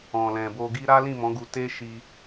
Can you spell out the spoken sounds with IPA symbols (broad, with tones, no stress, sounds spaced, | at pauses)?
ɔ̃˨ l ɛ̃˨ b o˧ ɡ i˦ ɾ a˦ l ĩ˦˨ m ɔ̃˨˦ ɡ u˧ t e˦ ʃ i˧